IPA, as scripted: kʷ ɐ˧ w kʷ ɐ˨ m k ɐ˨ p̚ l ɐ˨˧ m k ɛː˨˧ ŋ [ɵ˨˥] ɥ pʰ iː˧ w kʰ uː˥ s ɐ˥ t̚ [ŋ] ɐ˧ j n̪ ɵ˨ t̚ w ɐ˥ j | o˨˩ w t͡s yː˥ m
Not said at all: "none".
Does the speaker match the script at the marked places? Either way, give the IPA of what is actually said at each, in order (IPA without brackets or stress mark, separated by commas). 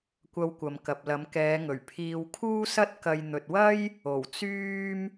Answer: ɵ˨˩, k